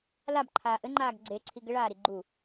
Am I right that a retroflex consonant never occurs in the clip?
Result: no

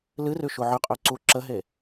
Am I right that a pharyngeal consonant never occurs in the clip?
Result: no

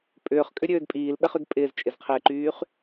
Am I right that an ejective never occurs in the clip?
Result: no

